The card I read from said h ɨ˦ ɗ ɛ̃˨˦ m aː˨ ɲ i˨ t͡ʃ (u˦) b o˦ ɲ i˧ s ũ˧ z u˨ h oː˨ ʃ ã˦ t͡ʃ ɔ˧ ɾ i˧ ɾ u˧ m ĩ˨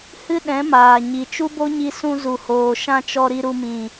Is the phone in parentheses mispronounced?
no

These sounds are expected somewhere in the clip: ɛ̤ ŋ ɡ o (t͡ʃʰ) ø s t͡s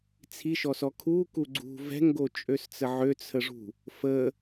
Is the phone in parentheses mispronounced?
yes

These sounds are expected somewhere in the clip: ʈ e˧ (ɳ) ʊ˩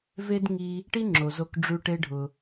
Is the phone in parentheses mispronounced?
yes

